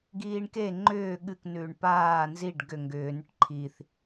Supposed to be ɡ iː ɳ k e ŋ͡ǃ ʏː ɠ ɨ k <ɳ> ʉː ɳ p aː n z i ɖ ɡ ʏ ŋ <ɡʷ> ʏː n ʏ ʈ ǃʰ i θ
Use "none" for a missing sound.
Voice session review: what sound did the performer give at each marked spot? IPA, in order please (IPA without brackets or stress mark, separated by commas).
n, ɡ